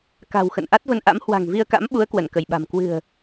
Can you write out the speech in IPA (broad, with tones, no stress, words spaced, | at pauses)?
ka̤˨˩wxə̰˧˨n ʔa˦˥t̚və˧nʔa̰˧˥m hwa̤˨˩ŋvi˧ə̯ka̰˧˥mɓu˨˦ə̯ kwə˧˩nkə˧˩jɓa̤˨˩m kwɨ̤˨˩ə̯